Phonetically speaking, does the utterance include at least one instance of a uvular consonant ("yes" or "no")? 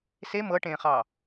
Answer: yes